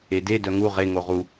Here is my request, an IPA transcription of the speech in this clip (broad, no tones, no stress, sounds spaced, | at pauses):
e d e d œ ŋ u ʁ e ŋ o ʁ u